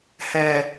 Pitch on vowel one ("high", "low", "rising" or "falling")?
low